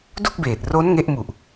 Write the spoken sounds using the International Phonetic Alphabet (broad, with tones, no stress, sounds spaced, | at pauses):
d u˥˩ k̚ b eː˨˩ t̚ r o˦˥ n ŋ e˦˥ ʔ m u˨˩ ʔ